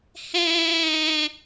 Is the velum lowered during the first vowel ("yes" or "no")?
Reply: yes